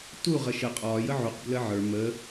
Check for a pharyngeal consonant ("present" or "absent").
present